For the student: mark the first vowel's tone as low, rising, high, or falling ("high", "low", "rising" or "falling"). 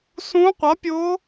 rising